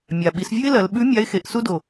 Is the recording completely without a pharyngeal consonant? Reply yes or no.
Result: yes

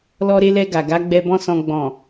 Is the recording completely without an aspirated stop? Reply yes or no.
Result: yes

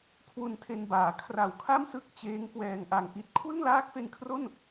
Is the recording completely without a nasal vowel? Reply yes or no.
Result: yes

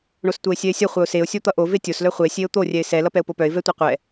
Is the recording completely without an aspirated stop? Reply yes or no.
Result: yes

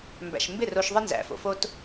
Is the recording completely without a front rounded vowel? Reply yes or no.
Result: yes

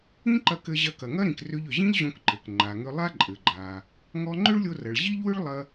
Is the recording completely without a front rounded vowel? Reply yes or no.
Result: no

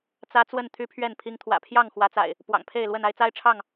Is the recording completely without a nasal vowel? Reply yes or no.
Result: yes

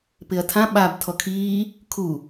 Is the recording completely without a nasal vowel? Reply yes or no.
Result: no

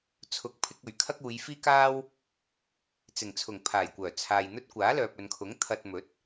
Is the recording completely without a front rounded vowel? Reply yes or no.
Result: no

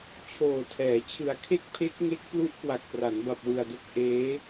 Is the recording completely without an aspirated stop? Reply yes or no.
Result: no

